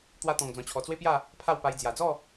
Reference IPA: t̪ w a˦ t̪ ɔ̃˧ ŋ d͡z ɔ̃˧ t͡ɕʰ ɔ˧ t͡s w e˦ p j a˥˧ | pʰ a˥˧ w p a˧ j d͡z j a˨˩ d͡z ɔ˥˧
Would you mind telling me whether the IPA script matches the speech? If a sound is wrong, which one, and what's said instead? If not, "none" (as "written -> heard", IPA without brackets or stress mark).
none